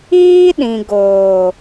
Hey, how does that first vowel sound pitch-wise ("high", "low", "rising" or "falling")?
high